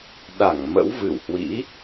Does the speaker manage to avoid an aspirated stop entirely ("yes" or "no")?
yes